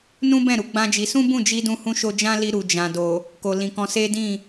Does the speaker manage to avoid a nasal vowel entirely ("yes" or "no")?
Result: no